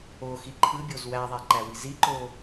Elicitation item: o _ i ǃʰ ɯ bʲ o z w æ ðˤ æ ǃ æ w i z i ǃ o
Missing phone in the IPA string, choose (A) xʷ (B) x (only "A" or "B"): B